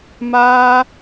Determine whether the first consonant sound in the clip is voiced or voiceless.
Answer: voiced